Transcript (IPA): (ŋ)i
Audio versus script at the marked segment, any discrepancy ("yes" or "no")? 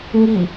no